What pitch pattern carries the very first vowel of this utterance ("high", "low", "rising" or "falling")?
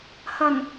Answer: low